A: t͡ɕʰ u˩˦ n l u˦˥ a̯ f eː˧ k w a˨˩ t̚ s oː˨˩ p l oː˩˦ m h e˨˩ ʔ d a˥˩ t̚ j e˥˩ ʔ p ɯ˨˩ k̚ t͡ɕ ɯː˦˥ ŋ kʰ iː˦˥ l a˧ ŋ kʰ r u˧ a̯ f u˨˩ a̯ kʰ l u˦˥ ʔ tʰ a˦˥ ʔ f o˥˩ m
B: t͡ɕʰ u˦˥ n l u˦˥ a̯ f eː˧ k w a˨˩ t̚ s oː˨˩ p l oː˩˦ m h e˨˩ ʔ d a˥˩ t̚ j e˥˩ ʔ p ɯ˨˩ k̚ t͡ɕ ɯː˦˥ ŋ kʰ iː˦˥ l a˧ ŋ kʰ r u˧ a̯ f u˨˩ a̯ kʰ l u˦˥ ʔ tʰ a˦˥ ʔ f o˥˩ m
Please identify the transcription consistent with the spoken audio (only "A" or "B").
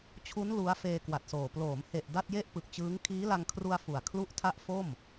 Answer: B